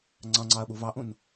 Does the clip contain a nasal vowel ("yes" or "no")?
yes